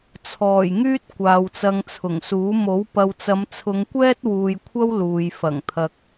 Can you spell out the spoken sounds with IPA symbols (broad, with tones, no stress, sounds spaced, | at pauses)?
t͡sʰ ɔː˨˩ j ŋ yː˥ t̚ kʷ aː˨ w t͡s ɐ˧ ŋ t͡sʰ ʊ˨˩ ŋ s uː˨˥ m o˨˥ w p ɐ˨ w t͡s ɐ˨˧ m t͡sʰ ʊ˨˧ ŋ kʷ ɛː˥ t̚ w uː˨ j kʷʰ ɐ˥ w l uː˨ j f ɐ˨˩ ŋ t̪ʰ ɐ˨ k̚